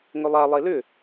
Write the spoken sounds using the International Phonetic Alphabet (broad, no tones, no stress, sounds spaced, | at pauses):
ŋ ʏ lˠ a lˠ e l ʏ